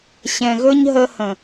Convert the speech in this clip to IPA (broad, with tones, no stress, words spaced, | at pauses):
ɕɛ̃˨ɣɵ˦ɲɦə˧ hə̃˨